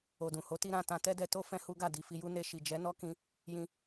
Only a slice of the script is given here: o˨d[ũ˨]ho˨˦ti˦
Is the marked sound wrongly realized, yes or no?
no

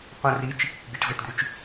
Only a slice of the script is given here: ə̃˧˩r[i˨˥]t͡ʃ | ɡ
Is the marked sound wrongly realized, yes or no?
no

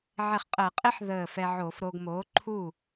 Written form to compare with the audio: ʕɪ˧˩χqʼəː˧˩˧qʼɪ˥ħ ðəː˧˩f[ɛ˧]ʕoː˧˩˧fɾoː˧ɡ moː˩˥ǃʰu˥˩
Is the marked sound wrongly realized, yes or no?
no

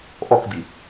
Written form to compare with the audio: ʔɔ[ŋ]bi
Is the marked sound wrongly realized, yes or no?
yes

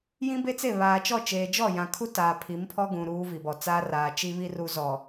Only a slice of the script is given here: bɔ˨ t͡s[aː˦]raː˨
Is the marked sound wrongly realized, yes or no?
no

